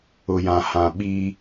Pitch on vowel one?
low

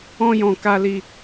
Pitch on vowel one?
high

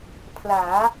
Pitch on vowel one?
rising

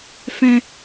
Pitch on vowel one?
high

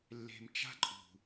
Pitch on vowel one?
low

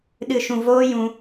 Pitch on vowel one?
low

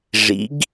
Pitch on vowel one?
rising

